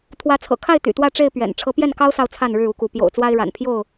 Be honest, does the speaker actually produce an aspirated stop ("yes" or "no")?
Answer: yes